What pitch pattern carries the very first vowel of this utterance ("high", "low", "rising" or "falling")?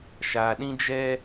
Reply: low